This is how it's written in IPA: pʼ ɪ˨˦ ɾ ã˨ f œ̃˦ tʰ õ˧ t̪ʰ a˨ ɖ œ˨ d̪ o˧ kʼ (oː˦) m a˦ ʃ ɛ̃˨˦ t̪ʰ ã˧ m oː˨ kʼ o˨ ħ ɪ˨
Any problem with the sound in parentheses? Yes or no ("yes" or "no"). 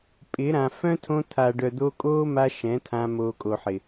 no